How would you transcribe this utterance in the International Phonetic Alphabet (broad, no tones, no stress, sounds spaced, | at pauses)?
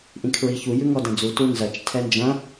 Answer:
ʔ ĩ kʰ ɹ i ç u j ʉ ŋ ɔ d ɐ̃ d͡z u t u n z ɐ t͡ʃ tʰ ɛ n d͡ʒ ɐ̃